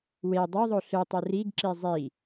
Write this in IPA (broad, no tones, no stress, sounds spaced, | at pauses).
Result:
w e dˤ o ðˤ o ɬ ɯ tˤ ø r i ɡ ǁ i zˤ i